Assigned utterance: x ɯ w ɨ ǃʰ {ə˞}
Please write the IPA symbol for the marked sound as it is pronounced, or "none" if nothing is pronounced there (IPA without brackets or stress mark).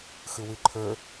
ə˞